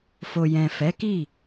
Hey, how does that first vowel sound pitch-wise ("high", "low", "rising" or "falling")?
low